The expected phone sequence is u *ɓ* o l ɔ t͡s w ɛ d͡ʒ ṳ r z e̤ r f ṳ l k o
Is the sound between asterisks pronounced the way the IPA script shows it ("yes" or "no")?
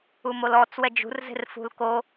no